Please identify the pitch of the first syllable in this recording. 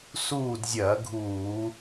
falling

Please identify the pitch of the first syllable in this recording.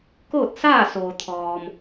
falling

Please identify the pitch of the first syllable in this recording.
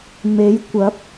rising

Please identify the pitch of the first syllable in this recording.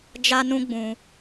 high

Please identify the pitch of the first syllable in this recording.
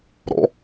rising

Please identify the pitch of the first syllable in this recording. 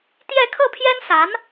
falling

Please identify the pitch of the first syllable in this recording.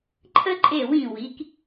high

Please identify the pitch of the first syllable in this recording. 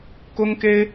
high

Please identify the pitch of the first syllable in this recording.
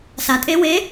low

